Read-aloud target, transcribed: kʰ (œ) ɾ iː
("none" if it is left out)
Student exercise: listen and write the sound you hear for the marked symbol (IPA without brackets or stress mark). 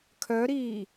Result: œ